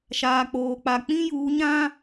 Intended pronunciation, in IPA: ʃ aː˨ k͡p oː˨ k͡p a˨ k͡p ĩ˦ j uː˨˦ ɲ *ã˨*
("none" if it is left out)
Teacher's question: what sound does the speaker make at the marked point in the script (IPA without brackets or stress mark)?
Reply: ã˦